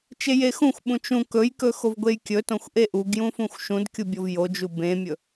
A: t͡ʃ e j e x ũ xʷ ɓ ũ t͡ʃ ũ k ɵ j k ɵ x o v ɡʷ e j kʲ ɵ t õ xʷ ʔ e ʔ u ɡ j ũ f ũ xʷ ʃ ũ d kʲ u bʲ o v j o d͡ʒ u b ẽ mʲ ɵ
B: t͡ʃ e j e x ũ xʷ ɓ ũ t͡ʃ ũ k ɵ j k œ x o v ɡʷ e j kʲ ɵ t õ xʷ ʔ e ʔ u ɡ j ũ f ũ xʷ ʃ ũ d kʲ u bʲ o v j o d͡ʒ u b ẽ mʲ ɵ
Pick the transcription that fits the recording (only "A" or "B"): A